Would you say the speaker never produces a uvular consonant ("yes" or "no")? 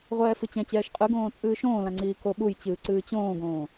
no